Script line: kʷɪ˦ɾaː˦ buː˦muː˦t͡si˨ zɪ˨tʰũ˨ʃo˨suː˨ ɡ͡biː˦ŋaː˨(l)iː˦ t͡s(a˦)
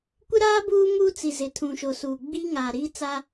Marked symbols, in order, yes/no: no, yes

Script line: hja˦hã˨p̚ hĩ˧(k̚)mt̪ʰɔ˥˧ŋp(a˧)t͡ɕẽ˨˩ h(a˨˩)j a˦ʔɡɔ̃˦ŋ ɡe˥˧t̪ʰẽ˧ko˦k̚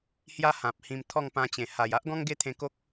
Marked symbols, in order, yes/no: no, no, yes

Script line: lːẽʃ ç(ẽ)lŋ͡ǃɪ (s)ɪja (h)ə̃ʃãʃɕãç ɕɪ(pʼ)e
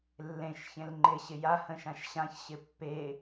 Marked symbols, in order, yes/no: yes, no, yes, no

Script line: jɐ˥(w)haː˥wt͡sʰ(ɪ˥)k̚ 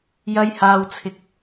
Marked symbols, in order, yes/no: no, yes

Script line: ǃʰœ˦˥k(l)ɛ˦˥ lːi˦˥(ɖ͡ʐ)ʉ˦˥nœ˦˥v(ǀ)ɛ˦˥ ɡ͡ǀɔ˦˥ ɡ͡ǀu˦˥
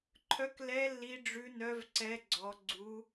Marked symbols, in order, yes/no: yes, yes, yes

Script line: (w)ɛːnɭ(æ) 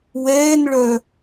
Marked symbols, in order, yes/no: yes, no

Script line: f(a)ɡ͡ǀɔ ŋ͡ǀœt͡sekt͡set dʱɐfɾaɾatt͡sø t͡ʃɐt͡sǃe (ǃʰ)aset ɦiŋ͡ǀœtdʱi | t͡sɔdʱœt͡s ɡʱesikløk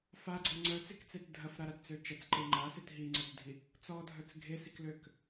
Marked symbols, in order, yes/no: yes, no

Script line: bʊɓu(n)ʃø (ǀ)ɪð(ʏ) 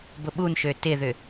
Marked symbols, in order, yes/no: yes, no, yes

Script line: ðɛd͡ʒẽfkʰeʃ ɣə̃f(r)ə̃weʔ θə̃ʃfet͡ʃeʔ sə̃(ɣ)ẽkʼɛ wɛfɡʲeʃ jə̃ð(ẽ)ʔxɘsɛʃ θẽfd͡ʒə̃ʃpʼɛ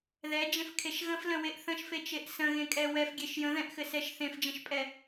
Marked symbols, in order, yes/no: no, yes, no

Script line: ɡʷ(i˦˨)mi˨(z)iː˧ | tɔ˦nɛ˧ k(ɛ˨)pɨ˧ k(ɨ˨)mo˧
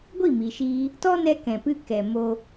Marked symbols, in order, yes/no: yes, no, no, no

